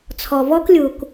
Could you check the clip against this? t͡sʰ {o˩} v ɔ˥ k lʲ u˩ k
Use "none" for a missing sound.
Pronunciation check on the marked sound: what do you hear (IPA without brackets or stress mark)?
ɔ˩